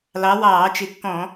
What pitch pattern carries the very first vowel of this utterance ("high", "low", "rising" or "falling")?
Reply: rising